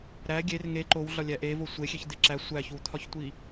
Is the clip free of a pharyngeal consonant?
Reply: yes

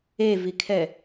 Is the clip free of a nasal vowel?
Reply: yes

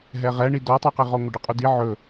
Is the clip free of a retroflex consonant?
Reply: no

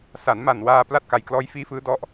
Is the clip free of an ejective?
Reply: yes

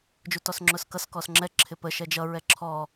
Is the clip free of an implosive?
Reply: yes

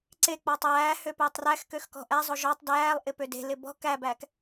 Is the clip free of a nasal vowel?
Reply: yes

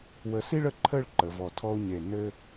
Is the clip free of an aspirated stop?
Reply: no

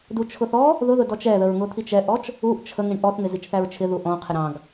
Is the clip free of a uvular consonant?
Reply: no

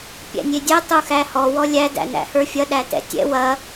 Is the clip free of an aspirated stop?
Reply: yes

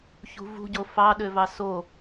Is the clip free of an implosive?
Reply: no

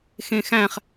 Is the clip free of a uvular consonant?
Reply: no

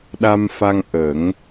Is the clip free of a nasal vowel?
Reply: yes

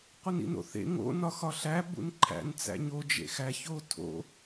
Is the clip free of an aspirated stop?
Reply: no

